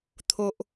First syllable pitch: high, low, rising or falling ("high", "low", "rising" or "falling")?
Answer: low